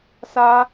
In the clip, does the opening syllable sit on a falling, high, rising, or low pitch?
high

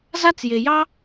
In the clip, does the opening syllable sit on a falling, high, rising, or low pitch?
high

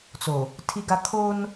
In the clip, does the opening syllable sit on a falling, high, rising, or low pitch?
low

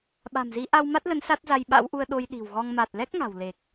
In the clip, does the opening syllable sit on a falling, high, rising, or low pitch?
low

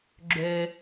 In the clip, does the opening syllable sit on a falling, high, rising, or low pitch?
high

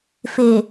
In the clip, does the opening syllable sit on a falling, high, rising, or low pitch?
low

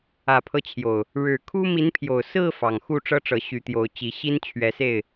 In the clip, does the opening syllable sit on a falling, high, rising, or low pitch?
low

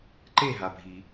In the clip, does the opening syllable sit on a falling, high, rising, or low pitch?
falling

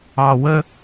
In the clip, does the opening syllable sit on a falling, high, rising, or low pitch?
low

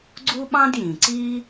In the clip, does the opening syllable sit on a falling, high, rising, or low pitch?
high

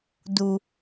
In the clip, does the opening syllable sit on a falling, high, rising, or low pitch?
low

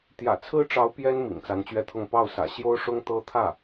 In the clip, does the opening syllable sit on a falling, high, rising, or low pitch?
low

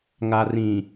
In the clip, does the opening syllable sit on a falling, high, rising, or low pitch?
low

